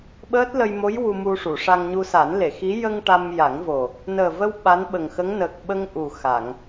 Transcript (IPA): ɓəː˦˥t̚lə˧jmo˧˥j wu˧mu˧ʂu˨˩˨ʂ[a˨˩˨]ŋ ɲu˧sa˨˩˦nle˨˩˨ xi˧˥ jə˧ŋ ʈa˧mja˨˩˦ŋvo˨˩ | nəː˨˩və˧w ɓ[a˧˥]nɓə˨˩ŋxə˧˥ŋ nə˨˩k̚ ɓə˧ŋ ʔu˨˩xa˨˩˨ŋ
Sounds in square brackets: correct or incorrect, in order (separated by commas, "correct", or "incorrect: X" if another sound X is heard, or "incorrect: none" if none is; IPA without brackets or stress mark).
incorrect: a˧, correct